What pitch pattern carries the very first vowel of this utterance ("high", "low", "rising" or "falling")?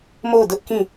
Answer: falling